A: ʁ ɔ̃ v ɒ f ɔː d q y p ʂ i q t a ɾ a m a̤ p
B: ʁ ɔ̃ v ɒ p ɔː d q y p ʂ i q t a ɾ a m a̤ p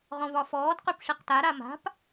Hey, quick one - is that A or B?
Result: A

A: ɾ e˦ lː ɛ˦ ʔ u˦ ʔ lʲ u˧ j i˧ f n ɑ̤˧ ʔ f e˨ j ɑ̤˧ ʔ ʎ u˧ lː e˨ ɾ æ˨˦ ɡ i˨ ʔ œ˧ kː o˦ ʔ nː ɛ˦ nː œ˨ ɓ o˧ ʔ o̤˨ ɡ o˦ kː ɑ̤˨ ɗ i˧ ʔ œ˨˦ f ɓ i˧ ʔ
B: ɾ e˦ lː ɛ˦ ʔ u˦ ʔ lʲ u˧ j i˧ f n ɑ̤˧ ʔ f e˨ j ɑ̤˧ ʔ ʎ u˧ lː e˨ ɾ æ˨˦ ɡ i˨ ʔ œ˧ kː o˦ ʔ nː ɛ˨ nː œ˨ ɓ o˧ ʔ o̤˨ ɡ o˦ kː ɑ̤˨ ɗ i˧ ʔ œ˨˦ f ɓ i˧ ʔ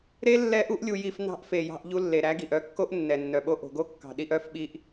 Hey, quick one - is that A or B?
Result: B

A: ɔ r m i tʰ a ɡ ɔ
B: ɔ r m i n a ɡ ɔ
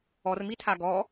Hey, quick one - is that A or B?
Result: A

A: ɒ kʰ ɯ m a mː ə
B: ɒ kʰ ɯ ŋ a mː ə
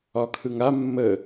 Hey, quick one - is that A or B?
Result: B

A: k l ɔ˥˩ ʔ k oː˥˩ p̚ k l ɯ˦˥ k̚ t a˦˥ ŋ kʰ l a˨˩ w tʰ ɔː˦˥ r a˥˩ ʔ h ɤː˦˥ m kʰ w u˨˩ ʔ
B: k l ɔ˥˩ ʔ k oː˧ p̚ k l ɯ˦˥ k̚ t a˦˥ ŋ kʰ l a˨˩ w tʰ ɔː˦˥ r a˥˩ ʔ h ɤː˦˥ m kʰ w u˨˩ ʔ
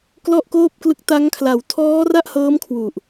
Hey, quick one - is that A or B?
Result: A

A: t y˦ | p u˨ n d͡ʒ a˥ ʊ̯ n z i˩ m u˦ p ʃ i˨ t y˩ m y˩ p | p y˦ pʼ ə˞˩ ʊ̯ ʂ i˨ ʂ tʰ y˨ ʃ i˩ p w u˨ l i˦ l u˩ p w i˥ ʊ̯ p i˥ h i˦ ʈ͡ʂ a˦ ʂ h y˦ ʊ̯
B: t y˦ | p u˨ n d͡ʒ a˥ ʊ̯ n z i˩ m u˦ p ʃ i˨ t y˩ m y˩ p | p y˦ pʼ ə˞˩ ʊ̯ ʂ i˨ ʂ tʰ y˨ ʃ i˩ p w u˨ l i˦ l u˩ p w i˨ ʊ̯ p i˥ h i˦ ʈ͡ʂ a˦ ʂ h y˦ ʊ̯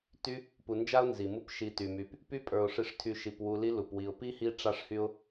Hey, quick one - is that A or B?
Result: B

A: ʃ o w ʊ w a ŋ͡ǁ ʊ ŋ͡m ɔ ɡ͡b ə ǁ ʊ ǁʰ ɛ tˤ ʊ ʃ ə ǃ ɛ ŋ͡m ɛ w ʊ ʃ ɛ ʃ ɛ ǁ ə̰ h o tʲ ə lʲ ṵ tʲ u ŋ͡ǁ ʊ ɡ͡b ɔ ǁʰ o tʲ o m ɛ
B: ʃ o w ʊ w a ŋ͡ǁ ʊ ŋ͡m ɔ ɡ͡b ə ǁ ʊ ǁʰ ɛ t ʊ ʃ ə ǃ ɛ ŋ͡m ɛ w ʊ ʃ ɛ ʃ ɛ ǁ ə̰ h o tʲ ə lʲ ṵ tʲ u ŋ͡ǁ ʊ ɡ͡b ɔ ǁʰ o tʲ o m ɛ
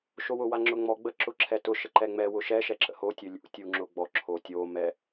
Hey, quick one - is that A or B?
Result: B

